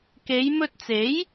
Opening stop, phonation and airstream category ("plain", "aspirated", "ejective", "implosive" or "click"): plain